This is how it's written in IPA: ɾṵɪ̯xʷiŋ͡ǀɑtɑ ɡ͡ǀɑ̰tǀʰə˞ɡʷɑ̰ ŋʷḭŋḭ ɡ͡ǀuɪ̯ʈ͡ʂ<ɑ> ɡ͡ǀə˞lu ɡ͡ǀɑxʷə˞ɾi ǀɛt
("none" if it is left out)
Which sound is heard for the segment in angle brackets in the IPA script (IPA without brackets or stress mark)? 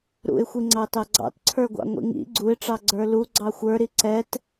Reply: ɑ